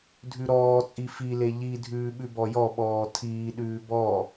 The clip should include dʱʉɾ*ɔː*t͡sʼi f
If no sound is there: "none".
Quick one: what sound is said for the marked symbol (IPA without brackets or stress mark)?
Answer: ɔː